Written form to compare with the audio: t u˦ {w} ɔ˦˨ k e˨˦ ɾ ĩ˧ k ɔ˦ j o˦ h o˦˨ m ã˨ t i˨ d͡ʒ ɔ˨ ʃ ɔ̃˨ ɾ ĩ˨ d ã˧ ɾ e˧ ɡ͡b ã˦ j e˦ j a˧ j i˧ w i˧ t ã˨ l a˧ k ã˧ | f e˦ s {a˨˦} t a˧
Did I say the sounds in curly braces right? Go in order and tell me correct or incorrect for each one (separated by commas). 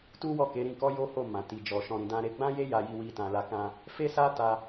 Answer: correct, incorrect